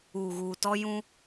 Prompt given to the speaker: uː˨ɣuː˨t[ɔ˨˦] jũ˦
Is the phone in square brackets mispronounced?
yes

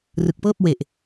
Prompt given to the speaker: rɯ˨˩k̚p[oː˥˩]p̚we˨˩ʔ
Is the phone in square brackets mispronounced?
yes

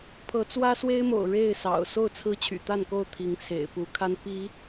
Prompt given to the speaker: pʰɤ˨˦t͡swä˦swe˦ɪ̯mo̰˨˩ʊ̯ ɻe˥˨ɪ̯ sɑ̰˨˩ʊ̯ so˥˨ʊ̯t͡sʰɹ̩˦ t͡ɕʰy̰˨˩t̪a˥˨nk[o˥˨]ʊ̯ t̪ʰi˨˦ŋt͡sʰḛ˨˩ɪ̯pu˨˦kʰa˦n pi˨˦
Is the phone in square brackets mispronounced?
no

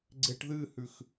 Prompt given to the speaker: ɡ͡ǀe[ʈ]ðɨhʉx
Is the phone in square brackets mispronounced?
no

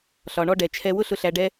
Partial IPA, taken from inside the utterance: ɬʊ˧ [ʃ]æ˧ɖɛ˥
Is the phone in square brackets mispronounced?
yes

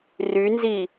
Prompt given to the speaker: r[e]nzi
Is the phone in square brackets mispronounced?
yes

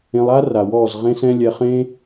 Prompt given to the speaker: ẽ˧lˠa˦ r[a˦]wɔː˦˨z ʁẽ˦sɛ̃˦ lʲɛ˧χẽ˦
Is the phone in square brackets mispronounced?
yes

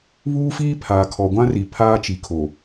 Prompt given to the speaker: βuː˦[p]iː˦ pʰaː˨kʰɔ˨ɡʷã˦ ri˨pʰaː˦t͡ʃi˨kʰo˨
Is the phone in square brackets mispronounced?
yes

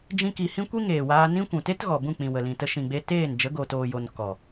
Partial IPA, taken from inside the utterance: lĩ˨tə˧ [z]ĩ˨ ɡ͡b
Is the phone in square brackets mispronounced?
yes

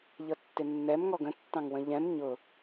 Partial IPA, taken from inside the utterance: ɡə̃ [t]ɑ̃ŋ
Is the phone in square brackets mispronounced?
yes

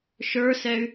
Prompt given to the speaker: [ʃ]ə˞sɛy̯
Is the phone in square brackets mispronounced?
no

